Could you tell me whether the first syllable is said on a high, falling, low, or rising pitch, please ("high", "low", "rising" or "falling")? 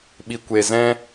low